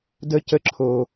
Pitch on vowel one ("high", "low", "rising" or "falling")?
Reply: high